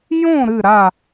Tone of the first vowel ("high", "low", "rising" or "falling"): falling